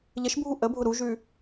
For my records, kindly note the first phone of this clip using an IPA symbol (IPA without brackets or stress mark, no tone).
ʎ